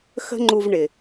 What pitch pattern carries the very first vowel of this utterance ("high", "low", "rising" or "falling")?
high